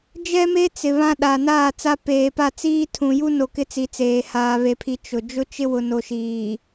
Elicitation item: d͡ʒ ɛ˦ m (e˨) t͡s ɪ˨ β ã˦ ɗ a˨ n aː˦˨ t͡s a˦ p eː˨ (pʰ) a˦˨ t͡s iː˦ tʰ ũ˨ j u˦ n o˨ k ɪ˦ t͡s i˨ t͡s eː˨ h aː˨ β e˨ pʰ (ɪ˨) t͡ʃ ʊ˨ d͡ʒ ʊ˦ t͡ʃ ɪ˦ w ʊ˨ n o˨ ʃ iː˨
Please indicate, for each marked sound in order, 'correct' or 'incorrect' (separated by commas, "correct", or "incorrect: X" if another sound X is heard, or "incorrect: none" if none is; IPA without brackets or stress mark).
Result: incorrect: e˦, incorrect: p, incorrect: i˨